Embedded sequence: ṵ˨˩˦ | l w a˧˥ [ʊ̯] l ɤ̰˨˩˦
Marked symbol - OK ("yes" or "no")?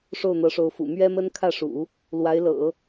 no